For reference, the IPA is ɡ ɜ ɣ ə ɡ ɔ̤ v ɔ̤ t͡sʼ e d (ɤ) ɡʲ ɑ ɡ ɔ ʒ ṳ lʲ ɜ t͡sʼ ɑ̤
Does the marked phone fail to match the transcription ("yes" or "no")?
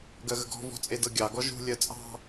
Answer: no